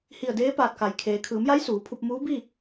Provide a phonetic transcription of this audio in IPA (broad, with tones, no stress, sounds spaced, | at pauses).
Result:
h i˧˩ ə̯ d eː˧˥ p aː˧˩ t̚ k a˩ j kʰ eː˩ kʰ ɯː˩˧ m j a˧˥ j s uː˩˧ pʰ u˧ p̚ m uː˧˥ b i˥˨